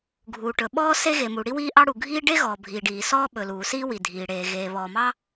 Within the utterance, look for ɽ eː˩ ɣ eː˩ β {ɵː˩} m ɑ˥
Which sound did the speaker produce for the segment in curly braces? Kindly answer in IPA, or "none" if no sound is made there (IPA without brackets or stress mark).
ɔː˩